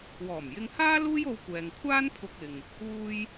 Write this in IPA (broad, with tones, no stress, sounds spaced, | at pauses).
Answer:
w ɔː˨˩ m j ɪ˧ ŋ h aː˥ l uː˥ j o˧ w kʷ ɛː˨ ŋ kʷʰ aː˥ n pʰ ʊ˧ k̚ ɪ˨ ŋ | uː˧ j